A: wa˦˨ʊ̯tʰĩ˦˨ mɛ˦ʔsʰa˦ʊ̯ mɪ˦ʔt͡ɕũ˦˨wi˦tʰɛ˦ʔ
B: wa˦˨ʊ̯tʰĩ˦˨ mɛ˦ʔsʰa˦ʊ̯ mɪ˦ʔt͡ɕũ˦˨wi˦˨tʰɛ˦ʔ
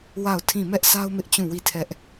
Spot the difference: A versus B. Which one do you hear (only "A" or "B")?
B